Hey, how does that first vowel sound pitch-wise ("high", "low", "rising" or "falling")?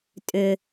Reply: low